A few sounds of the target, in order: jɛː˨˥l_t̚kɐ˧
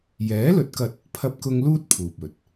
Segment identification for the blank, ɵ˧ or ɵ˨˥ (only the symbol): ɵ˨˥